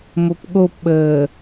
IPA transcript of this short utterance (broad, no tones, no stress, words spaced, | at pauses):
mopɠopɓəː